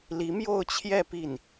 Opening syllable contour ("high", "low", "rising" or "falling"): rising